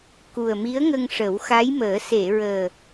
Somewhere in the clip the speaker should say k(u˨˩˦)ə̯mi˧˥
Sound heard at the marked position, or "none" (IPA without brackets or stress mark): u˨˩